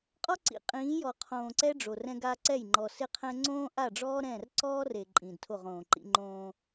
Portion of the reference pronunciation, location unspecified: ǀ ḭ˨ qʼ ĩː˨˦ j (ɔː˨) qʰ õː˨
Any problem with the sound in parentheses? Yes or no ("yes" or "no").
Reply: yes